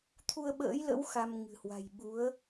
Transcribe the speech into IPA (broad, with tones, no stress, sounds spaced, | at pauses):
t̪ʰ u˧ ə̯ ɓ ə̰ː˧˥ j l ə̰˧˥ w x a˧ m ŋ ɨ̤˨˩ h w a̤˨˩ j ɓ u˨˦ ə̯